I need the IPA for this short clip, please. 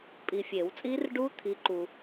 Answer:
pʼi˨fʲe˨˩˦wt͡sʼi˦˥rɖu˦˥ t̪ʰi˨˥ǃu˨

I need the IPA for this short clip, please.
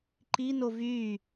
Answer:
ǃino vy

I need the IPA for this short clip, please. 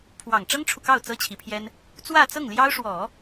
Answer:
pʰwɑ˨˩ŋʈ͡ʂɤ˥ŋʈ͡ʂʰu˨kɑ˥˩ʊ̯ t͡sɤ˥t͡ɕʰi˧˥pʰjɛ˥n | t͡swä˥˧t͡sɤ˥˩ŋljɑ˥ʊ̯ʂwɔ˨˩˦

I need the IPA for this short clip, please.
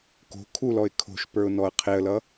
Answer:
ko̤ kʰulɔɪ̯ kʰo̤ʃpə˞ʊ̯ nɔə̯qʰeə̯lʌ

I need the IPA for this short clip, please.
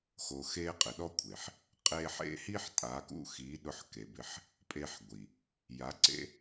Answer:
xo˨xe˧ qʼɪ˨ɗɔ˦kʷʰe˨ħ | qʼe˧ħḛ˦hi˦ħ tʼa˨˦kṵ˦xi˨˦ ɗʊ˧ħke˨bɪ˧ħ | pʼe˧ħɡʷi˨ | ja˨˦ǀḛ˦

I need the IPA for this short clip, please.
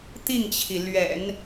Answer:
t̪i˥˩ŋt͡ɕʰi˩ lɥɛ̰˨˩˦n

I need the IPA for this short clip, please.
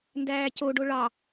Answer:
ndæːcoɖo ɭɑ

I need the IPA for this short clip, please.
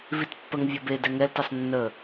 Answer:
vitpːəŋ vʲɤbe dɛŋɛltɛsˤ nːə

